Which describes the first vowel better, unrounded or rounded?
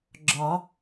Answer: rounded